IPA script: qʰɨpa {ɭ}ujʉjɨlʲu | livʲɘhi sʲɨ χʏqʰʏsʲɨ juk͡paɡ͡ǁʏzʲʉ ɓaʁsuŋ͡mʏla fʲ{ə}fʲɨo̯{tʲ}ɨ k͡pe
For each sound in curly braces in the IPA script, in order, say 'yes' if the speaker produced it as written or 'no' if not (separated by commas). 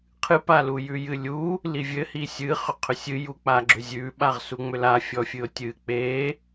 no, no, yes